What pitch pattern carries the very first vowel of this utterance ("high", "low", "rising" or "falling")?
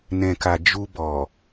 low